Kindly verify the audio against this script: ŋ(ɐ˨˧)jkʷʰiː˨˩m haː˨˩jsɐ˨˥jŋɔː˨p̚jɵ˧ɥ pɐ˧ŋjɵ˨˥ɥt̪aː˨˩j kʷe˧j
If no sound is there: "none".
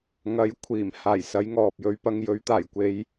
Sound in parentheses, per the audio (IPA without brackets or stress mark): ɐ˨˥